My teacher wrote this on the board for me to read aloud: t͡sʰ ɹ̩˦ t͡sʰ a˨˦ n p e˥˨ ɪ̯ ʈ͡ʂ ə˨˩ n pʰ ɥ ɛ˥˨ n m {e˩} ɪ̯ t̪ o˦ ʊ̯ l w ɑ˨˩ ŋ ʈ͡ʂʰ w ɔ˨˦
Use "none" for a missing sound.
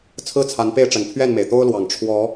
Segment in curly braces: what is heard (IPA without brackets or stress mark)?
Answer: e˩